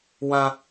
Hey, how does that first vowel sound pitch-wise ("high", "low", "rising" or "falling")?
high